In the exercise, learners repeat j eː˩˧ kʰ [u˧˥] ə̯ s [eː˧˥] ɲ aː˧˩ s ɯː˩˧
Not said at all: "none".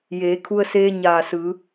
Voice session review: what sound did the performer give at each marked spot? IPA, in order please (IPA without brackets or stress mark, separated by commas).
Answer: u˧, eː˧